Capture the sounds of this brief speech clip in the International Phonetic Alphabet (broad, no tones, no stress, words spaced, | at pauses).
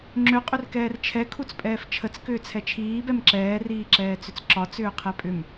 ŋ͡ǁʏ qʼʏrkɛːrt͡ʃʰɛ kʰut͡spʼɛːft͡ʃʰət͡s kʏːt͡sʰɛt͡ʃʰiː bɛmǁɛː riːǁɛːt͡sʏt͡sǁɒ t͡sʏːqʰɛpʼʏm